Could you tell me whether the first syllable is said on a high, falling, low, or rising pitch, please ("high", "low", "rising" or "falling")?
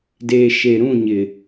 low